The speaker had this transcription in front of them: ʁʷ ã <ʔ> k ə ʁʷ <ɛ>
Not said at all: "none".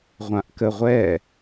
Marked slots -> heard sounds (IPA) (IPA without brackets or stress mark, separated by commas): ʔ, ɛ